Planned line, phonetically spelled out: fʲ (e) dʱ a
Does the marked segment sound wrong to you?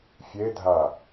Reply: no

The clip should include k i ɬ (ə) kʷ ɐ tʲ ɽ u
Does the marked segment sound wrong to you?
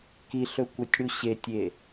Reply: yes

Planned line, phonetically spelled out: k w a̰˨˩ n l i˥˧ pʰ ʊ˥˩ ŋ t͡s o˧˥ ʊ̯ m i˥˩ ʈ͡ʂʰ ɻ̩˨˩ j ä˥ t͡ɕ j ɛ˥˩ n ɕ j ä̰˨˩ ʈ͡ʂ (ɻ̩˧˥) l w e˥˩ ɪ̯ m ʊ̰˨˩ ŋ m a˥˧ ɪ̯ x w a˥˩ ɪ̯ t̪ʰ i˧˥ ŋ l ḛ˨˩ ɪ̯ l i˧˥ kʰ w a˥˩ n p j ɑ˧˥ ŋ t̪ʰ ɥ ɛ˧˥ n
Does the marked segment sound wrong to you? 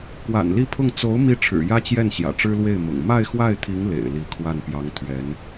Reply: yes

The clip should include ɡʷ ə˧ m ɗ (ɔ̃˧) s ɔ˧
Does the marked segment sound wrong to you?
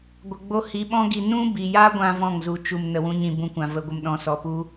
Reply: no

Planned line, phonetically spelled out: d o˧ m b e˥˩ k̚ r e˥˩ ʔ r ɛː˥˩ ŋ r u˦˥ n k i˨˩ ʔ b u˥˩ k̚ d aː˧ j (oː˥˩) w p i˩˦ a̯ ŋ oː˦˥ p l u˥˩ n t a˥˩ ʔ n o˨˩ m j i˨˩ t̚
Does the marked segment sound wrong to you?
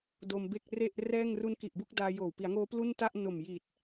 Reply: yes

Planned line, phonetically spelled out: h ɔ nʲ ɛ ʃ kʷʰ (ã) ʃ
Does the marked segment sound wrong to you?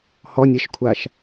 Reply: yes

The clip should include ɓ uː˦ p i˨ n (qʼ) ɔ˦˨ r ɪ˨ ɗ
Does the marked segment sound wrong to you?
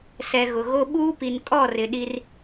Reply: yes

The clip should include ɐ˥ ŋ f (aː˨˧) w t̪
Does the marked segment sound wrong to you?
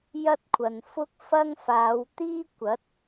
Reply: no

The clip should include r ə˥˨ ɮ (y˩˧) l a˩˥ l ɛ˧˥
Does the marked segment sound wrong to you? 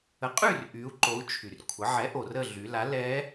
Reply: no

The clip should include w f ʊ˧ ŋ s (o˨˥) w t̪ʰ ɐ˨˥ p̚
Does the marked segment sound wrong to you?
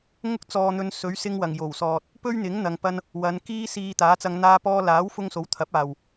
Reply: no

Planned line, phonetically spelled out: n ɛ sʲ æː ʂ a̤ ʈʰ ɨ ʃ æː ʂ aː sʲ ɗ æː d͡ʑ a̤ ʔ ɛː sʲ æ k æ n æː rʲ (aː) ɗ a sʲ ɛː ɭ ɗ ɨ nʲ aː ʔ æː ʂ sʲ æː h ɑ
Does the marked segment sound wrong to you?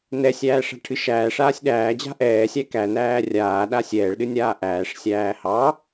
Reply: no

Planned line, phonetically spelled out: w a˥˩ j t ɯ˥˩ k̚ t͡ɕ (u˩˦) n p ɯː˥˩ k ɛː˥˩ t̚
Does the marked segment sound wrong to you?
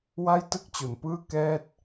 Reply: yes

